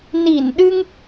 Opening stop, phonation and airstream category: implosive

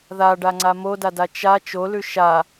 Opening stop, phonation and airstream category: plain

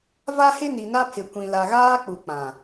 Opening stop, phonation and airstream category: aspirated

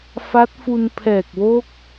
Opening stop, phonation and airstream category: plain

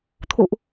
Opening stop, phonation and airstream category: aspirated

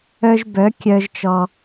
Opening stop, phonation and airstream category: plain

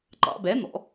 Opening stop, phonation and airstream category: click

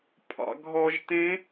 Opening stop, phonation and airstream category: aspirated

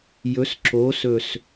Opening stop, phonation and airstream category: click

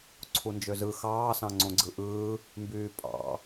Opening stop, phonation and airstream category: click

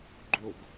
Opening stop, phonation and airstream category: click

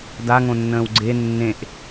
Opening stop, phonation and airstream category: plain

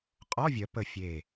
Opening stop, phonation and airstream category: ejective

